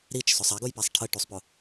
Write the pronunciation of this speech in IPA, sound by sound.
ɾ i t͡ʃ s ʊ sˤ a ɡ ʊ j p a sˤ ʈʰ ə ʈ u sˤ p ʊ

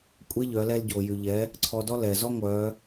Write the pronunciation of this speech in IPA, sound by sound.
kʷʼ e˧˥ ʎ œ˩˧ l ɛ˧ l ɟ o˩ j y˩ ʎ ɛ˩˧ | ǀʰ ɔ˧ d ɔ˥ l ɛ˩ z ɔ˥ ŋʷ œ˩˧

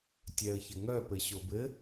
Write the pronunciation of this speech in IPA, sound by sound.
tʲ ɛ ə̯ ç ɘ ŋ œ p ɘ ɕ o b ɘ

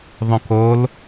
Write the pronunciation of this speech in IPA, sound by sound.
ðˤ õ k o l

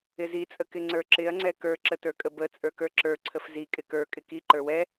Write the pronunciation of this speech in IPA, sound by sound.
ɪ z i t͡sʼ ə k ɪ ŋ͡ǀ ə˞ ǁ ɪ ɐ̯ ŋ͡ǀ ɛ k ə˞ ǁ ə t ə˞ kʼ ə b ə t͡sʼ ə˞ k ə˞ ǁ ə˞ ǀʰ ə f z i kʼ ɪ k ə˞ kʼ ɪ k i ǃ ə˞ w ɛ

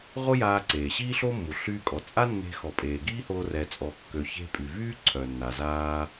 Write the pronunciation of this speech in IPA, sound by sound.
ʁ o˥ j aː˧ ǀ eː˩ ɕ iː˥ ɬ o˥ mː u˩ ɬ yː˧ kʼ ɔ˩ t͡sʼ a˥ nː e̤˧ x ɔ˩ pʼ eː˩ ɡ iː˥ h oː˧ r ɛ˩ t͡sʼ ɔ˩ kː ø˩ ç e̤˧ pʼ y˩ v yː˥ ǀʰ œ˩ nː a˩ z aː˧

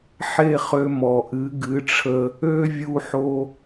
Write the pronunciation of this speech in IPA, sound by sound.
ħ e˥˩ χ ø˧ m ɔ˩ ʔ ɨ˩˥ ɡ ɨ˩˥ ʈ͡ʂʰ ə˧ | ø˥ vʲ u˧ ħ o˧

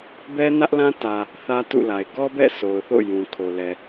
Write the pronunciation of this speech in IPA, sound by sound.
b ɛ˦ n ä˦ ʔ l ã˦ t ä˨ | θ ä˦ t ṵ˦˨ l a˨ ɪ̯ ɡ ɔ˦ b ɛ̰˦˨ s o˨ ʊ̯ θ o̰˦˨ j ũ˨ kʰ o˨ l ɛ˨

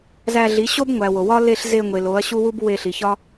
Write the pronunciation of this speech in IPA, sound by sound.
z æ˧ ɮ i˨˦ ɕ o˦ b ŋʷ æ˨ w o˨ w ɒ˦ l e˧ ɬ z e˧ ŋʷ e˨ l o˨˦ ɐ̯ ɕ u˦ w u˦ b w e˧ ɬ i˨ ç ɒ˦

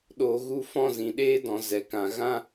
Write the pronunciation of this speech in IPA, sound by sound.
ɗ oː˨ ɣ u˧ f ɔ̃˦˨ z ĩ˨ ɗ eː˦ d ɔ̃˨ z ɛ˨ k ã˨ ɣ ã˦

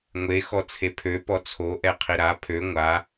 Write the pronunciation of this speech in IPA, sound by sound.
ŋʷ e x ɔ t͡sʰ e pʰ ø p ɔ t͡sʰ o ʔ ɛ qʰ i ɾ a pʰ ø ŋʷ a

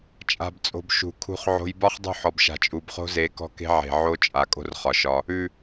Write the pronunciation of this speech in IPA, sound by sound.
t͡ʃʼ a̤˨ b t͡sʼ o̤˨ b ʃ ṳ˨ kʰ ṳ˧ χ ʕ o̤˧ j b ɒ˦ χ dˤ ṳ˦˨ ħ ɔ˨ b ʃ a̤˨ t͡ʃʼ u˨ b χ o̤˦ z e˨˦ k ɔ̤˦ k e̤˦ ʕ e̤˨ ʕ o˦ t͡ʃʼ a˨ kʼ o̤˦ r χ ɒ˨ ʃ ɒ˧ | ʉ˨

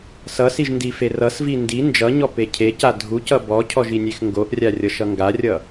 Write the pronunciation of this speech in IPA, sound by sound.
s ʌ s i ʒ n d i f e r ʌ s v i n d i n d͡ʒ ʌ ɲ ɔ p e cʰ e c a dʱ u c ʌ b ɔ cʰ ɔ ʒ i nʲ e x ŋ ɡ o ʔ rʲ a rʲ ʌ ʃ ʌ ŋ ɡ a rʲ ʌ

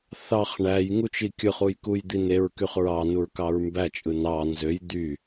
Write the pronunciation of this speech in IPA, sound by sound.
θ ɑ χ ɳ æ j ŋ u t͡ʃ i kʲ ɯ χ u j k u j d̪ i n e ɹ k y χ ɹ ɑ n u ɹ k ɑ ɹ m b æ t͡ʃʼ ɯ n ɑ n z ø j d̪ y

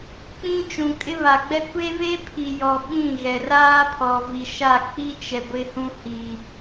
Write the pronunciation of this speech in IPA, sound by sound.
k͡p ĩ˦ t͡ʃ ũ˨ kʼ ɪ˦ β a˨ ɡ͡b ɛ˦ kʷ e˦ v e˦ pʰ i˨ j ɔ˨ ɓ ĩ˦˨ ɣ ɛ˨ r aː˦ pʰ ɔ˨ v i˨ ʃ a˦˨ k͡p i˦ t͡ʃ ɛ˨ ɡʷ ɪ˨ h ũ˨ h i˨

